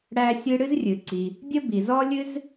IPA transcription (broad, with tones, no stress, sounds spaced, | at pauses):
ɽ æ˥ sʲ ɨ˥ ɽ ɨ˥ z rʲ ɨ˩ ǀ i˩ | dʲ ə˥ b i˩ z ɔ˥ lʲ ɨ˥ z